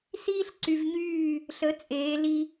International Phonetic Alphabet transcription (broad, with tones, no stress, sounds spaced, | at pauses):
s iː˥ ɬ ǀ y˧ v ɲ yː˥˨ | ɬ ə˩˥ t͡sʼ eː˩˧ l i˧